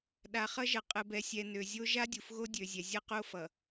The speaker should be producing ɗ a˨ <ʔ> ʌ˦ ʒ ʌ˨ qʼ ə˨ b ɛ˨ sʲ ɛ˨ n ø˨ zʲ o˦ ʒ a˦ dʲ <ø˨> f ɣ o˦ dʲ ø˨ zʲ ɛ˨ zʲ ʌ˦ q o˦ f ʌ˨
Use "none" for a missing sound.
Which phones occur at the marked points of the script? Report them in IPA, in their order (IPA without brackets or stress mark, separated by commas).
χ, u˨